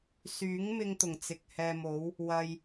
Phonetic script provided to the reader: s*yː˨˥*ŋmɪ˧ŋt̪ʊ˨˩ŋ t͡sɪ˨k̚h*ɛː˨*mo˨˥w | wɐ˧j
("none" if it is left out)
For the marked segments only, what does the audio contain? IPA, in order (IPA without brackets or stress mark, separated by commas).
yː˨˥, ɛː˧